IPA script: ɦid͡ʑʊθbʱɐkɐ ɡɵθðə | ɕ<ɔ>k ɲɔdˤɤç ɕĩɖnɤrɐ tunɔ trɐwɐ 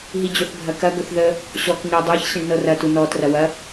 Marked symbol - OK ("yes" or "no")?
yes